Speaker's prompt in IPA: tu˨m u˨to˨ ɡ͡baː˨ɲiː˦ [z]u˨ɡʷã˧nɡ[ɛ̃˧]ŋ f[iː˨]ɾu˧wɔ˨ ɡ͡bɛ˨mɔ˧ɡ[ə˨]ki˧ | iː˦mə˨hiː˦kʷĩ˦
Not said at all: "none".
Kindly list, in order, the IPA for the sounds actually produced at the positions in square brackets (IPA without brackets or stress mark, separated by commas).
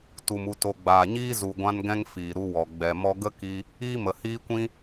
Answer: z, ɛ̃˧, iː˨, ə˦